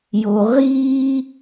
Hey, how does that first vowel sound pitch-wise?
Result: low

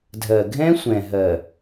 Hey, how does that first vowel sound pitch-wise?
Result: low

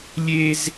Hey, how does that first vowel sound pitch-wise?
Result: high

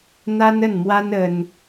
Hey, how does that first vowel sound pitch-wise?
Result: high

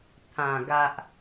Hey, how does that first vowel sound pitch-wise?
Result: low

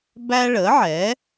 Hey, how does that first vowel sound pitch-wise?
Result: high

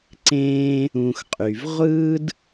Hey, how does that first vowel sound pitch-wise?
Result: high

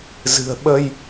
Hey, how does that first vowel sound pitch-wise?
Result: low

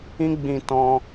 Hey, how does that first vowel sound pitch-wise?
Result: high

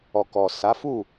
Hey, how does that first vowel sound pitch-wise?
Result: low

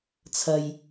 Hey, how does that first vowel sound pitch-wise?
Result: low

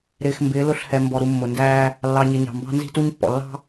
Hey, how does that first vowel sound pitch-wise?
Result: low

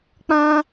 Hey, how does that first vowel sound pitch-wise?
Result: high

